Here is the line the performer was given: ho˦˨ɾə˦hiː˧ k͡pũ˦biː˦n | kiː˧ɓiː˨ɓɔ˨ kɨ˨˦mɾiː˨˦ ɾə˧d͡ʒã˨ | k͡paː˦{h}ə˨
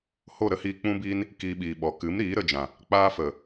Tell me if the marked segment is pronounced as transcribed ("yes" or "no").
no